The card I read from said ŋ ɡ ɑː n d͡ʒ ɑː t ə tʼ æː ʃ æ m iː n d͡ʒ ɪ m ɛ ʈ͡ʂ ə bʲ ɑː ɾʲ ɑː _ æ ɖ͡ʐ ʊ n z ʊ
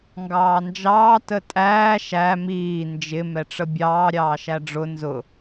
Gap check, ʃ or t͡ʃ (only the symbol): ʃ